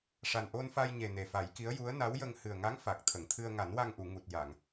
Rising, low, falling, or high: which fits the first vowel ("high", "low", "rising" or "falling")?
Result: low